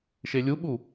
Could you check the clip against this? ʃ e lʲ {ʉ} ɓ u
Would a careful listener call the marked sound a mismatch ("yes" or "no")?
yes